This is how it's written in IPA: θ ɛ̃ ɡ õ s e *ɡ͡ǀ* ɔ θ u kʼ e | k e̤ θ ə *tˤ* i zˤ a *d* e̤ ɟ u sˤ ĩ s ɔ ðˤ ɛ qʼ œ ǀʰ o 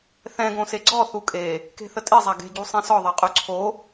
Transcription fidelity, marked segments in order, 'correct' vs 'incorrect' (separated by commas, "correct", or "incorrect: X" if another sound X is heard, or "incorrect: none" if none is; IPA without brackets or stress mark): correct, incorrect: tʼ, incorrect: ɡ